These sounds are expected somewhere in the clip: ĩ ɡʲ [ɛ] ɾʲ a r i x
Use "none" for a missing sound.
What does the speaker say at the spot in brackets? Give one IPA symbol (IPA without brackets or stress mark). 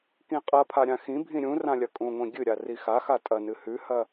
ɨ